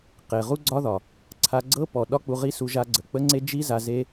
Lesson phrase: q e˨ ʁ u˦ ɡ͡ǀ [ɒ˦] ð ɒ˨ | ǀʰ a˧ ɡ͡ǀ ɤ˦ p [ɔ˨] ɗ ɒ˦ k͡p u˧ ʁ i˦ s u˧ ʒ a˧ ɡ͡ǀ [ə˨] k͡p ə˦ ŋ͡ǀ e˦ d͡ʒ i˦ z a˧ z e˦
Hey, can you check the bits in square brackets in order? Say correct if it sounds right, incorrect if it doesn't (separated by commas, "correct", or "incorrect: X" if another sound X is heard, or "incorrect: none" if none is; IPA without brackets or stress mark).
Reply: correct, correct, correct